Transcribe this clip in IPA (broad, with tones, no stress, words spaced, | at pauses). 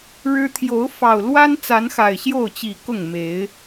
ɻɻ̩˦ t̪ʰjo˨˦ʊ̯fɑ˨˩ʊ̯ lwa˦n t͡sa˨˦nxa˨˩ɪ̯ɕjo˥˨ʊ̯ t͡ɕi˨˩ kʊ˥˨ŋ me˨˦ɪ̯